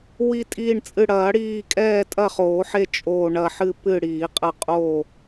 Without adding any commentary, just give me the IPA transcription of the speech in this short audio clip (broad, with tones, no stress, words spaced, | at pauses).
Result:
wi˦˨tʼiː˦˨ɳt͡sʼɨ˦˨ ɽɐː˨˩˦ɽiː˦˨ kʼɛː˦˨tʼɐ˦˨χoː˨˩˦ħe˦˨ t͡ʃʼoː˦˨ɳɐ˦˨ ħɨ˦˨pɨ˦˨ɽiː˨˩˦qʼɐ˦˨ qʼoː˦˨